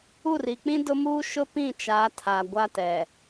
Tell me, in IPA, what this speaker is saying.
u˦˨ r i˨ k͡p ĩ˦ d ʊ˦ m u˦ ʃ ʊ˦ p ĩ˦˨ t͡ʃ a˨˦ tʰ a˨ ɡʷ a˦ t ɛ˨

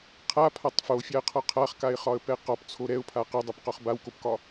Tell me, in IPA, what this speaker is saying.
qʰ a pʰ a tˤ f o fʲ a ə̯ qʰ ɒ qʰ a χ k a ɪ̯ χ ɒ ə̯ p ɛ q ɒ p t͡sʰ o ɾ ɛ ʊ̯ pʰ a q ɛ dˤ o p q ɒ χ b a w k o p k ɒ

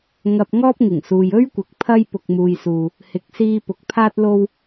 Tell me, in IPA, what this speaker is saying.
ŋ ɐ˧ p̚ ŋ ɔː˥ p̚ ŋ ɪ˨˩ ŋ s uː˨ j ɵ˥ ɥ kʷ ɪ˨ k̚ pʰ ɐ˥ j p ʊ˧ k̚ m uː˧ j s uː˧ | h ɪ˨˥ k̚ s iː˧ p ʊ˨ k̚ pʰ aː˥ t̚ l o˥ w

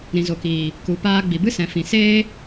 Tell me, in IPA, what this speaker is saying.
ɾ ĩ˨ z o˨ k iː˨ | k u˨ p aː˧ ɡ͡b i˨ b ɨ˦ s ɛ̃˨ f ĩ˨ s eː˦

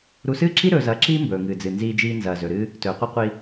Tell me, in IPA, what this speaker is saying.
ɾ u˧ s ɨː˥ ǁ i˥ ɾ ɵː˧ z ɐː˧ ǁ iː˥ m b ɵː˩ ŋ ɨː˩ d͡z ɨ˩ n z iː˧ d͡ʒ iː˧ n z ɐː˩ z ɵ˩ ɾ ɨː˧ | t ɵː˩ qʷ ɨ˧ qʷ i˧

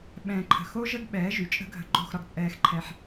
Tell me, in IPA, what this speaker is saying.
ɓ ɛ̃ː˨ ǃʰ ə̤˨ x o˦ ʒ ə˦ ɡ ɓ ɛː˨˦ ʒ y˨ t͡ʃʼ ə̤˦ ɡʱ ə̤˧ ɡ͡ǃ o̤˦˨ x ɾ ɒ˧ ɡ t͡sʼ ɛː˧ x ǃʰ ɛ˧ ħ

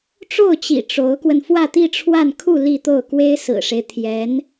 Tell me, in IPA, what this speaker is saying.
ʈ͡ʂ o˥˩ ʊ̯ t͡ɕ ḭ˨˩ ʈ͡ʂ o˧˥ ʊ̯ k w ə˧ n f w ä˥˧ t̪ i˥˧ ʈ͡ʂʰ w a˥˧ n kʰ u˥˧ l i˥˧ t̪ o˥˩ ʊ̯ k w e˥ ɪ̯ s ɹ̩˨˩ ʂ e˦ ɪ̯ t̪ʰ j ɛ˧˥ n

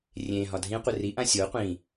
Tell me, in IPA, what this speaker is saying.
rʲ ẽ ɦ ɒ dʱ ĩ qʷ e r i ʔ ã sʲ o qʷ ĩ

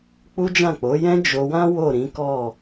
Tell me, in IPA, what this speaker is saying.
k͡p u˦ d͡ʒ ã˦˨ k͡p o˨˦ j ɛ̃˦ d͡ʒ o˧ w ã˦ w o˦˨ ɾ ĩ˨˦ k ɔ˦˨

